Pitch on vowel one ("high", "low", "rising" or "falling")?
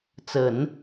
low